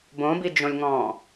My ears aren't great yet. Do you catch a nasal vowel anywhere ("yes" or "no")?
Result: yes